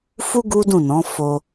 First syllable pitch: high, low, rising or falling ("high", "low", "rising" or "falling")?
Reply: high